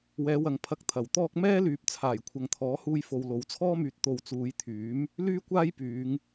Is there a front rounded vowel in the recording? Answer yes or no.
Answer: yes